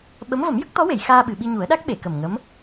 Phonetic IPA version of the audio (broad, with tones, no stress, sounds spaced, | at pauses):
ɓ ə˧˥ m v ə˨˩˦ m j ə˦˥ k̚ t̪ ɔ˧˥ w e˨˩˨ j x aː˧ ɓ ɨ˨˩˨ ɓ i˧ ɲ u˨˩˦ ə̯ ɗ a˦˥ k̚ ɓ e˨˩˨ k ə˨˩ m ŋ ə˧˥ m